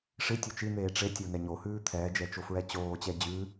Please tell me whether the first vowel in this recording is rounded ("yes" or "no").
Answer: no